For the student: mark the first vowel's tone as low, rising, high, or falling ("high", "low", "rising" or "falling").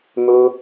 high